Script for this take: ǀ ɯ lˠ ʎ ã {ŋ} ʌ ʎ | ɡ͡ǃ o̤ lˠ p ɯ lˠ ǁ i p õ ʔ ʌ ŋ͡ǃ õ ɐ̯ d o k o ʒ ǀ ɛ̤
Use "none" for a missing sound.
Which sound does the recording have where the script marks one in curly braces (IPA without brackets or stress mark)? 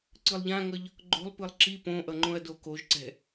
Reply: ŋ